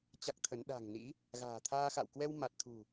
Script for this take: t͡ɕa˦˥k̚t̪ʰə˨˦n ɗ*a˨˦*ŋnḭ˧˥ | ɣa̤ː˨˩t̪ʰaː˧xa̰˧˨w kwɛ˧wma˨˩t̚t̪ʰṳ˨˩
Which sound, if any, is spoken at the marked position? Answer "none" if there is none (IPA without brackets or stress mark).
a̤˨˩